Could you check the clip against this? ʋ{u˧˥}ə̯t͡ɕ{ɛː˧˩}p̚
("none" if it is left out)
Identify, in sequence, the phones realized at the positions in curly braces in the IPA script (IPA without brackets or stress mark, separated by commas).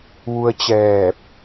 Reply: u˧, ɛː˧˩